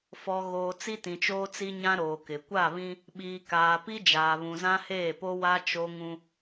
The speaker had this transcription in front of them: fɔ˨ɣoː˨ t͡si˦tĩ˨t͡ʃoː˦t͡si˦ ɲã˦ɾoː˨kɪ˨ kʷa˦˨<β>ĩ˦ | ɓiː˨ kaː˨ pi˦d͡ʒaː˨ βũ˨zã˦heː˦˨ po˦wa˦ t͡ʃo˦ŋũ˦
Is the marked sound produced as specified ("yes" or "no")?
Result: yes